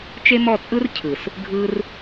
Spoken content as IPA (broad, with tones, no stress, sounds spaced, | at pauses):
t͡ʃ e˦ m ɔ˦˨ t͡sʼ ɯ˦ r cʰ ɯ˨ s | ɡʱ ɯ˧ r